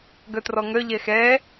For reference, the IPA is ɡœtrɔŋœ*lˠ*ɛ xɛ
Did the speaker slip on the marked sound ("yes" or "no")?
yes